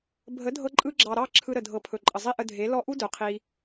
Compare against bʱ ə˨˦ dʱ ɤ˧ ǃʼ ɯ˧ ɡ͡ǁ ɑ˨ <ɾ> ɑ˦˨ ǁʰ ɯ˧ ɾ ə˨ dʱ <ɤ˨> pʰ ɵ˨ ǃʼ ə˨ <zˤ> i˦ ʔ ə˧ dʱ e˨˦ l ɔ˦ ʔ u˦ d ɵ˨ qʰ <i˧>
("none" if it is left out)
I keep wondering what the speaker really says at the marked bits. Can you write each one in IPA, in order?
ɾ, ɤ˨, zˤ, i˧

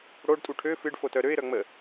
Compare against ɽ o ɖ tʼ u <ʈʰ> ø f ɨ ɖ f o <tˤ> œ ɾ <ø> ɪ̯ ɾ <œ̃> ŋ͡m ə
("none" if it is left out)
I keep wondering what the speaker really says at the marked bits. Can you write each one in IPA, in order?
ʈʰ, t, ø, œ

